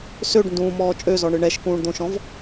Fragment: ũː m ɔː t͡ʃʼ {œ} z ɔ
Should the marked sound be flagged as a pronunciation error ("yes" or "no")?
yes